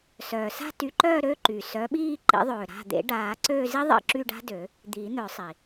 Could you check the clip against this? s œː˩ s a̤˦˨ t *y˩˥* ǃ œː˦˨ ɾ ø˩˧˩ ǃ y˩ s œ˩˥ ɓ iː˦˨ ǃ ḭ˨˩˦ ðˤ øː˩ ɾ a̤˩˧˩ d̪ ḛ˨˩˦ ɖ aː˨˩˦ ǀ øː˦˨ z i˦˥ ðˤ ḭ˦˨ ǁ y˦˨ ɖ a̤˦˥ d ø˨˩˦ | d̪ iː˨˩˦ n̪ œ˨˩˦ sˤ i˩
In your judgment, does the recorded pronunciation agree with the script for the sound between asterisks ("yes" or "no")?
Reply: yes